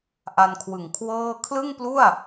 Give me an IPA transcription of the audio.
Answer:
ʔ a˧ n kʰ w ɯ˨˩ ŋ kʰ w ɤː˥˩ kʰ l ɯ˥˩ ŋ p l u˥˩ a̯

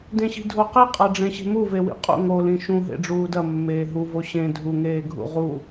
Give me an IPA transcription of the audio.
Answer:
d ẽ ɕ i̤ dʱ o q i qʼ a ɖ͡ʐ ẽ ɕ e̤ m u v e w ḭ qʼ ṵ ŋ o l ĩ ʃ ũ ɦ ḛ ɖ͡ʐ uː d ɐ mː eː ɦ u v o ɕ ẽ dʱ u ŋ eː ɡʱ ṵ ʁ u

